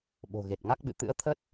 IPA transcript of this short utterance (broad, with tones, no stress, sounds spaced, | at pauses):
ɓ o̤˨˩ ɣ e˨˩ t̚ ŋ a˦˥ k̚ ɓ ɨ̰˧˨ t̪ ɨ̰˧˥ ə̯ t̪ʰ ə˦˥ t̚